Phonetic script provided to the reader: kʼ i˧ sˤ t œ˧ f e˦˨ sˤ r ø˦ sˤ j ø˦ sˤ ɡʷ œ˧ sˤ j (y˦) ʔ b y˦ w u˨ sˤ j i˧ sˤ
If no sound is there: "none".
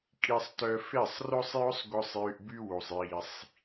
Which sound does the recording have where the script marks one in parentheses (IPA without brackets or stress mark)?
y˧